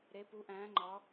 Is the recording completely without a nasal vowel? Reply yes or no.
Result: no